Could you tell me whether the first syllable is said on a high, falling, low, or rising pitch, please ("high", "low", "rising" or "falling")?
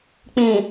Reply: low